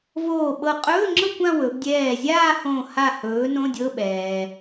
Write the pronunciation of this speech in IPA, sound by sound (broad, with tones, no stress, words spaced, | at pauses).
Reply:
voː˧˩ɓɤ˧˩qʼɵː˧˥˧ŋ͡ǁɤ˥˧ kʷã˥˧wɵ˩˧b dʲɛː˧˩zʲaː˥˧hõː˧˩ ha˧˩hɵː˩˧ nõ˧˥˧dʲɤ˧˥˧ɓɛː˩